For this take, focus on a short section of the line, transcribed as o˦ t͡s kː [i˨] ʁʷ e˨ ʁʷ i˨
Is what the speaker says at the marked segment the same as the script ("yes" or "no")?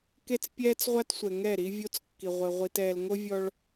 yes